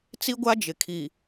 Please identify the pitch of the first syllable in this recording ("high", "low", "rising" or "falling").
high